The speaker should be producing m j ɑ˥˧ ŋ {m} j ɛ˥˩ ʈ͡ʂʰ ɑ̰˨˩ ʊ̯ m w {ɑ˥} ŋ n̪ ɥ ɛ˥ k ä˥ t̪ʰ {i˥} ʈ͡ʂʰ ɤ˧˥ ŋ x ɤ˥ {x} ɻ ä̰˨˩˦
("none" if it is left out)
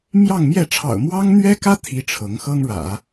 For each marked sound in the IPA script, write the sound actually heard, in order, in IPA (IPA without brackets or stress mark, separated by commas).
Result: m, ɑ˥, i˥, ŋ